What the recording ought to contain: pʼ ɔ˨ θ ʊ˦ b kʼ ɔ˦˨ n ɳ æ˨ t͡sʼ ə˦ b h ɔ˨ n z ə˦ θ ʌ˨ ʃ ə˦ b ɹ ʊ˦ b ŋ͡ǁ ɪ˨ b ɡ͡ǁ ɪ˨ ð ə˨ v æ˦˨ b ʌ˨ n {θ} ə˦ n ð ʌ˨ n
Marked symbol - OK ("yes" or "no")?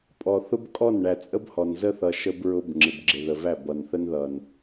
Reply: yes